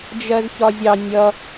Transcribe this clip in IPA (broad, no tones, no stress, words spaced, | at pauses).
d͡ʒɜzçɒzʲɑ nʲʌ